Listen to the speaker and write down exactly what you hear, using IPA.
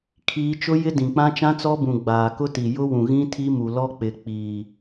kʰ iː˦ t͡ʃ ʊ˦ j ɪ˦ d ĩ˨ k͡p ã˦ t͡ʃ ã˦ t͡s ɔ˦ b ũ˨ ɡ͡b aː˨ k ʊ˦ t i˨ j ʊ˦ w ũ˨ ɣ ĩ˦ tʰ i˦ m u˨ l ɔ˦ k͡p ɪ˨ k͡p iː˨

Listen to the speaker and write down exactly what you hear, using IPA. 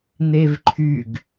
n̪ e v ǃʰ y ɡ

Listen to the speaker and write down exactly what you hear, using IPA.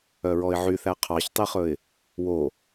œ ɹ ɔ ɪ̯ ʕ y θ æ qʰ ɑ ç tˤ i χ ɵ ɪ̯ | w o

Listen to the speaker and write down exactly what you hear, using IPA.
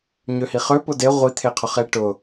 ɲ ø h i χ ø p ʊ d e ʁʷ i t̪ʰ e qʰ ʊ χ e ʈ ʊ

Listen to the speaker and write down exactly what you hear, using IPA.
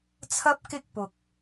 t͡sʰ ɐ˥ p̚ k ɪ˥ k̚ p ʊ˨ k̚

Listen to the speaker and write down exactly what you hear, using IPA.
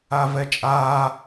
a v ɛ t͡ʃʼ a

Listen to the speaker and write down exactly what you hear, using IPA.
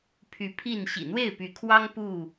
pʰ y˨˦ pʰ i˥˨ n ɕ ḭ˨˩ n̪ w e˥˨ ɪ̯ p y˨˦ kʰ w ɑ˦ ŋ p u˥˨

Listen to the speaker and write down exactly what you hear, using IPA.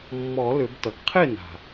mː ɔ˨˩˦ l ʏ˨˩˦ b t ʌ˩ ɡ qʰ e˥˩ n a̤˩

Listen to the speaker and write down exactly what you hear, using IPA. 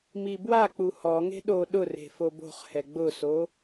m i b w a k͡p u h ɔ ŋ e̤ ɗ o ɗ ʊ r e̤ f o b o̤ χ h ɛ ɡ͡b ʊ s o

